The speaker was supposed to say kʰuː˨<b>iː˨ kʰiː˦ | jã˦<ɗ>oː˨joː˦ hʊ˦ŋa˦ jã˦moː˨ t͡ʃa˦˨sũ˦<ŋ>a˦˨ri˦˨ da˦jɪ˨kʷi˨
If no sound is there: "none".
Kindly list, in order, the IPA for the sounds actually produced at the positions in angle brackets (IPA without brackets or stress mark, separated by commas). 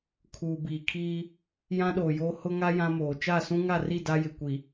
b, ɗ, ŋ